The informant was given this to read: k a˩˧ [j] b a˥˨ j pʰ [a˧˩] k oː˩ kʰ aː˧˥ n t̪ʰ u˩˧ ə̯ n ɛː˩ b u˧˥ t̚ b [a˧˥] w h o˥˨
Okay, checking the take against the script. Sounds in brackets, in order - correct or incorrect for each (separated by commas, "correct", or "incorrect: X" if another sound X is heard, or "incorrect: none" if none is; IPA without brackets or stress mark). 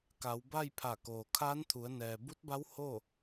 incorrect: w, correct, correct